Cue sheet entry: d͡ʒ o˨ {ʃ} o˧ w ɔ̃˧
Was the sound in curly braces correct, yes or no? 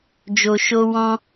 yes